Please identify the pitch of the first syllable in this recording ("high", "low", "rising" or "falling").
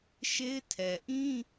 high